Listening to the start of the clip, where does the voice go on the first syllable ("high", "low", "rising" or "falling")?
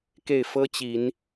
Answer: falling